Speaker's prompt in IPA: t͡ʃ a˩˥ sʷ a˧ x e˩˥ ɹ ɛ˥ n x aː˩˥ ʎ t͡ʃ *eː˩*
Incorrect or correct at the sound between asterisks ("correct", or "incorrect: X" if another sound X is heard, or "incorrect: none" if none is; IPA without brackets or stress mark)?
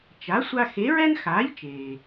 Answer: correct